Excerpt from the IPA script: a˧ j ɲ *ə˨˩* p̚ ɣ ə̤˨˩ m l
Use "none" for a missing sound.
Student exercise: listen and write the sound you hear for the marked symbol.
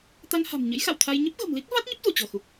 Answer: ə˦˥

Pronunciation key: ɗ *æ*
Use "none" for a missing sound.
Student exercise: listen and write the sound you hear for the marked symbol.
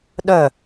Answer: œ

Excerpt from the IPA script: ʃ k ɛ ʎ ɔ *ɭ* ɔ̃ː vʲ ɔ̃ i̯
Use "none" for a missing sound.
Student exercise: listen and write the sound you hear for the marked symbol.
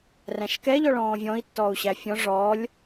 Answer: ɭ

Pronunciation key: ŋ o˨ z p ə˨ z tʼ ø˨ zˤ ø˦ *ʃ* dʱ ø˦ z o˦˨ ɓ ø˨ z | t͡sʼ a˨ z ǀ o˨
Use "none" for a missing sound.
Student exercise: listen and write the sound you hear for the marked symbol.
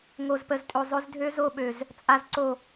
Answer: z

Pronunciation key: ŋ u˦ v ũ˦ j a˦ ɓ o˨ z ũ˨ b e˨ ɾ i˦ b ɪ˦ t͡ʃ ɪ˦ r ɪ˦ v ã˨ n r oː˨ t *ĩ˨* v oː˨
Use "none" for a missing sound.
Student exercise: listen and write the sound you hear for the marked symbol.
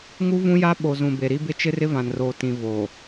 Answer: ĩ˨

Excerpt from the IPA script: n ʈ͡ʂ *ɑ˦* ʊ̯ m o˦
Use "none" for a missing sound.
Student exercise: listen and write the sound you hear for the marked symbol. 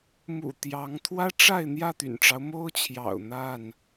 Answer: ɑ˦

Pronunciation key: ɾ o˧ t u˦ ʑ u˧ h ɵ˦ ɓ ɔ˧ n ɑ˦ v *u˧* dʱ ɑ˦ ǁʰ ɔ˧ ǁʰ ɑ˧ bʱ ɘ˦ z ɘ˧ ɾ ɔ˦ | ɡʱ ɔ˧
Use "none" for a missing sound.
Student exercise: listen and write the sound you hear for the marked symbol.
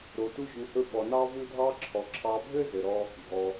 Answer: u˦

